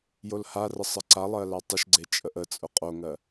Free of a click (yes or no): no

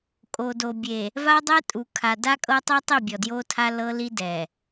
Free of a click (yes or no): yes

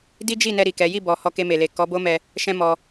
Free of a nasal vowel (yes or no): no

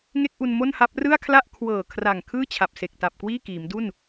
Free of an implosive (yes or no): yes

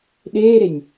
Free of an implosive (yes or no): no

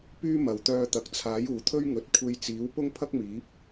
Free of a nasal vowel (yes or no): yes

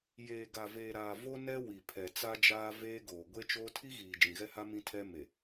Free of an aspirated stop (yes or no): no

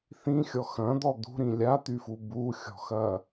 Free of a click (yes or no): yes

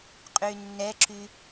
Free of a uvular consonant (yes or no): no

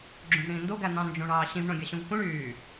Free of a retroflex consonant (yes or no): no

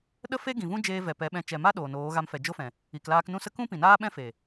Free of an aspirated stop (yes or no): yes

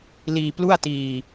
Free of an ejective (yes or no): yes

